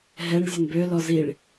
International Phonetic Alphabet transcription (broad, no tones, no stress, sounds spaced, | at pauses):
ɦ ɛ ɳ zʲ ə n b ø l ɔ z i ɭ